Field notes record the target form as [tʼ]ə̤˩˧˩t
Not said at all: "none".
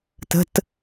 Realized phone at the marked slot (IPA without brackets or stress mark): t